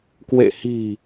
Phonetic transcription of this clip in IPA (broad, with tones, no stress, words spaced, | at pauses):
kwḛ˧˨hi̤˨˩